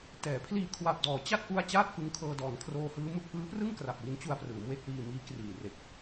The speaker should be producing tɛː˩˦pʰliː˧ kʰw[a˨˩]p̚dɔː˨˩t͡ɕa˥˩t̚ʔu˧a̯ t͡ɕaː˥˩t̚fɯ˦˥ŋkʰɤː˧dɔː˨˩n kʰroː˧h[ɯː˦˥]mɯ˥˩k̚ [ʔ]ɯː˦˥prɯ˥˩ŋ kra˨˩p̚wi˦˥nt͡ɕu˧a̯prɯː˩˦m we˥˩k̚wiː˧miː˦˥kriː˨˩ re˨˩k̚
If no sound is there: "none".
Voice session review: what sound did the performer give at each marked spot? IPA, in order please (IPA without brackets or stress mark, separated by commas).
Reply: a˨˩, ɯː˦˥, ʔ